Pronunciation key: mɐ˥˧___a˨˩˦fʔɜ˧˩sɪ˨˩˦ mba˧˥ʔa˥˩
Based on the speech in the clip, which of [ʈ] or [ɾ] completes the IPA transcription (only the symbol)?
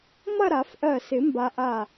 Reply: ɾ